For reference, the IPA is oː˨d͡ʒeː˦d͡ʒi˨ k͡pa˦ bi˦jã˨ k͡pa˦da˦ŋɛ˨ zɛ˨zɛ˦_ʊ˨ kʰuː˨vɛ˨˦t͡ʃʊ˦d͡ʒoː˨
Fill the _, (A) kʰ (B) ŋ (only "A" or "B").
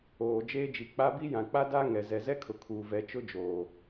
A